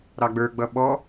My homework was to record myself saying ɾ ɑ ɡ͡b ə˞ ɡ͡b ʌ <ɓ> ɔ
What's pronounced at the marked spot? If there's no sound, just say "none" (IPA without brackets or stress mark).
ɓ